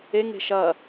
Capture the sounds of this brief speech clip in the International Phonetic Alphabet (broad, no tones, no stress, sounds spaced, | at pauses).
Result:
e ŋ e̤ ʃ ɐ